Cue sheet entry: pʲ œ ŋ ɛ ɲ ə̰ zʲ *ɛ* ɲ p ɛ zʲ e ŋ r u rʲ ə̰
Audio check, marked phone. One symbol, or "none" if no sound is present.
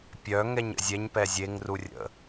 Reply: ɛ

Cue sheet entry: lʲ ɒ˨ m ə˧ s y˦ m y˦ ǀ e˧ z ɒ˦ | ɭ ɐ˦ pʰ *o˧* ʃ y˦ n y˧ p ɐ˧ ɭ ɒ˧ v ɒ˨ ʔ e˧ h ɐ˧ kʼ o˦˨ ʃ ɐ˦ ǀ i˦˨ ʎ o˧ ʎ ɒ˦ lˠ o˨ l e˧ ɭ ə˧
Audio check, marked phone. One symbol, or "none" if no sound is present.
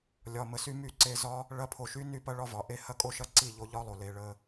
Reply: o˧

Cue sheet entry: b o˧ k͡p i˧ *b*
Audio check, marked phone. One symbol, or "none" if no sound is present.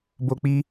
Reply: none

